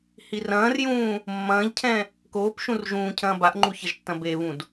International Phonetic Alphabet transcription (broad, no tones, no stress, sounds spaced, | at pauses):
h i r ɐ̃ː r j ũː | mː ɐ̃ː ʎ cʰ ɛ̃ | k oː p ʃ ũ r ʒ ũː cʰ ɐ̃ː b a ʔ ŋ͡ǃ u ç ɐ ʒ tː ɐ̃ b e β ũ d